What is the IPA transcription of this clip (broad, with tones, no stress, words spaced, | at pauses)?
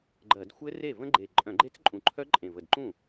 ɡ͡ǃɜ˧˩˧d xʷɘ˦˥ re˥˩və̃˦˥ ɡ͡ǃe˨˩ ǃʼœ̃˧˩˧ɡ͡ǃe˦˥t͡sǃʼũ˨˩ǃʰœ˦˥ ǃʼẽ˨˩və˨˩dǃũ˥˩